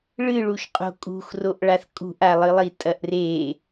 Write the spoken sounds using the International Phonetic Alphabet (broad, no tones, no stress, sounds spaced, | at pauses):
ɭ ɨ ɭ u ʃ qʼ o̤ kʼ ṳ x r o ʔ ɭ a θ kʼ ṳ ʔ a lˠ ɨ lˠ i tʼ ɐ ʔ r e